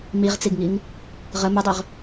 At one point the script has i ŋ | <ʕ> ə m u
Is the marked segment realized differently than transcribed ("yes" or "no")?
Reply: yes